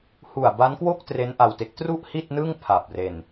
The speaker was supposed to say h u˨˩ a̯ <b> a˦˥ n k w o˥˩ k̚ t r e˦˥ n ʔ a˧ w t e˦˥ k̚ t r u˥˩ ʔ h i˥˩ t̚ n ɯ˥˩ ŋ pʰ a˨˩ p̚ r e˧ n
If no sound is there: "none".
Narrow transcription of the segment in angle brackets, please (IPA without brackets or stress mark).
b